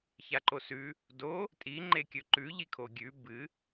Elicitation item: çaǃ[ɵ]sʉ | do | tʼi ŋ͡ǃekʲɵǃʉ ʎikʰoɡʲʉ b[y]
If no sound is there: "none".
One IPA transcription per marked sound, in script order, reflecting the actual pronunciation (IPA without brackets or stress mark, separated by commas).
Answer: o, ɨ